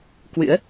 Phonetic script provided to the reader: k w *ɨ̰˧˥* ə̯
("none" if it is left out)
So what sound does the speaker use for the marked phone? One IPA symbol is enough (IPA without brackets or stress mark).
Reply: ɨ̰˧˥